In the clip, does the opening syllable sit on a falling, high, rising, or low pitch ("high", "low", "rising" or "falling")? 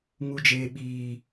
high